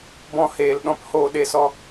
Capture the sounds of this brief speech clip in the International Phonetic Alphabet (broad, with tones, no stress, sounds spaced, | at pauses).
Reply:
b ɔ̃˧ h eː˨ l ɗ ɔ̃˦ p h oː˧ ɗ e˧ s ɔ˧